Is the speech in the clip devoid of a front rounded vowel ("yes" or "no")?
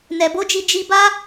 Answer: yes